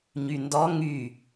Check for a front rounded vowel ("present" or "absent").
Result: present